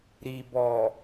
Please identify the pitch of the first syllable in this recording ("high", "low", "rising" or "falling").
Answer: low